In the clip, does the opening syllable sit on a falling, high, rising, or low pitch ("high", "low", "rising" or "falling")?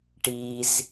high